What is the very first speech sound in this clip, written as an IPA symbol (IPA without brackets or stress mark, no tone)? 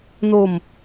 n